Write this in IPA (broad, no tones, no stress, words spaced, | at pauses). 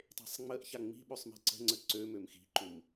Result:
tˤe̤sˤŋ͡məʔça ŋ͡mi̤ɓøsˤ mi̤ǀə̤ŋ͡ǀə ǀø mømxi̤ǃum